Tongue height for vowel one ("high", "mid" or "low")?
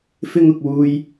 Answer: high